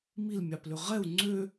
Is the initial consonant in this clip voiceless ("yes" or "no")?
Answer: no